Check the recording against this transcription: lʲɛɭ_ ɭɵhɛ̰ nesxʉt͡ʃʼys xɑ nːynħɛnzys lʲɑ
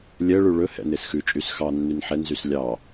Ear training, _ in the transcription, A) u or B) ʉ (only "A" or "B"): B